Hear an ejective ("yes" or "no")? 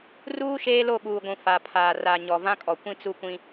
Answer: yes